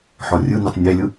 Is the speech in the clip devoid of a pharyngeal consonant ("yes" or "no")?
no